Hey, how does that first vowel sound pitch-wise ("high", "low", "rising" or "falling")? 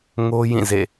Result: high